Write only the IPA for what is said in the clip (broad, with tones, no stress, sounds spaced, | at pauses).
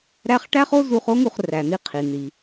ɾ æ˥ χ ʈ æ˥ χ o˥ z u˧ χ o˥ ŋ u˧ χ r æ˩ n̪ i˧ qʰ i˩ n̪ i˩